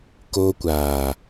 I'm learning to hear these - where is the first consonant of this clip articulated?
velum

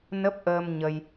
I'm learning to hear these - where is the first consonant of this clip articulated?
tongue tip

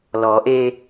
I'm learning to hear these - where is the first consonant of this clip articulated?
tongue tip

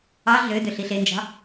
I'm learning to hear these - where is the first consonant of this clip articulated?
tongue tip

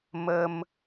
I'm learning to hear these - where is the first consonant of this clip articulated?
lips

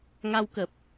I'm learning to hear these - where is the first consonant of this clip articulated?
velum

